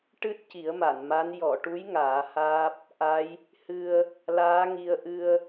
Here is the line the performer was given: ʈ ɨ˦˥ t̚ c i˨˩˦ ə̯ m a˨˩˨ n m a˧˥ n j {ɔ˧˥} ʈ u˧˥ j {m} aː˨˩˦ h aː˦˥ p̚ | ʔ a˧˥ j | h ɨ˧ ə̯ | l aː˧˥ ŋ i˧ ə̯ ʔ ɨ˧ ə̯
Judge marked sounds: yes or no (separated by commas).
no, no